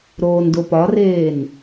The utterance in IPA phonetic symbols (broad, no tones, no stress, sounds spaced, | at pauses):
ɾ oː n d o p ɒ r eː n